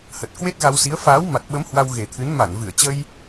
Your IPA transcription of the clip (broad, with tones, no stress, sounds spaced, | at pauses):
h ə˨˩ t̚ k w e˦˥ t̚ ɣ a˧ w s i˨˦ ə̯ f aː˨˦ w m a˨˩ t̚ ɓ ə˨˦ m h w a˧ w ɣ e˨˩ t̪ʰ ɨ˨˦ n m a˧˩ n v ɨ˧˩ ə̯ t͡ɕ ə˧ j